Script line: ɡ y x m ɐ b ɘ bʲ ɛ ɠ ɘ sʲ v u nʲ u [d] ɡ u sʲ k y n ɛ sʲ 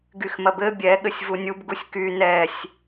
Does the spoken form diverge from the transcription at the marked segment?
yes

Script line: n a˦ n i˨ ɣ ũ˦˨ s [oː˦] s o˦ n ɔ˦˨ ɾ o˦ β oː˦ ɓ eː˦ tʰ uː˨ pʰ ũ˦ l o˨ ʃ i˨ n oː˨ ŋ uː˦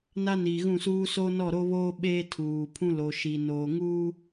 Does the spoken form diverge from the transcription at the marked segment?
yes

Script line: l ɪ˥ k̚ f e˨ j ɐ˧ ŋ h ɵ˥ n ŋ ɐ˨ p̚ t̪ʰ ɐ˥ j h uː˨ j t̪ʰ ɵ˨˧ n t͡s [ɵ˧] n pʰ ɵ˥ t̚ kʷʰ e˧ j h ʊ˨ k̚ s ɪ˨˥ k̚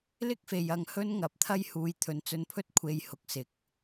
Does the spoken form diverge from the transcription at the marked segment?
no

